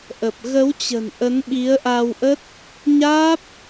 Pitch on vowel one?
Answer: low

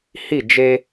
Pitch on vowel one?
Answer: falling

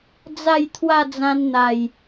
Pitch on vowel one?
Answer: falling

